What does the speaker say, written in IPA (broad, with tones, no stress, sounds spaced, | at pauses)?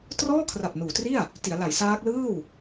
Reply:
t r ɔː˥˩ kʰ r a˨˩ p̚ n uː˩˦ t r i˥˩ a̯ | t i˩˦ a̯ l a˩˦ j s aː˦˥ k̚ l ɯː˥˩ w